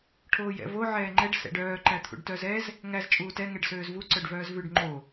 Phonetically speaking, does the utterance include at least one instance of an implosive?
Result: no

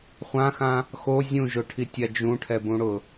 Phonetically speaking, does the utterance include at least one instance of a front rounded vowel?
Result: no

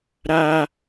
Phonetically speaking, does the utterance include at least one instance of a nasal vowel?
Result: no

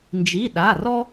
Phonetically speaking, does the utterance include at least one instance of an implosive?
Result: yes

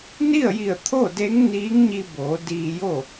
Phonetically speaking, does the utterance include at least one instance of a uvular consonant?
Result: no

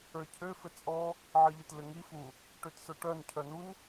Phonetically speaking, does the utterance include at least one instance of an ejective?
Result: yes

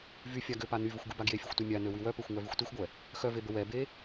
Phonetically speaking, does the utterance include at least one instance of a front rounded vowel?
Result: yes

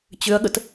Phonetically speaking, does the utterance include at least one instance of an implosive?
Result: yes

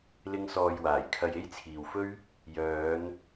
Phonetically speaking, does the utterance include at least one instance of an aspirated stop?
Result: yes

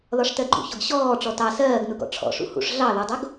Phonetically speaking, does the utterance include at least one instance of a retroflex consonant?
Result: yes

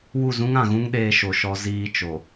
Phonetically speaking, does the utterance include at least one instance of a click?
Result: no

